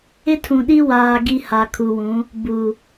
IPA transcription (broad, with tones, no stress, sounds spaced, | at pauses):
ɪ˦ tʰ ũ˨ ɗ i˦ w aː˨ ɡ i˨ h a˨ kʰ u˨ w ũ˨˦ | b u˨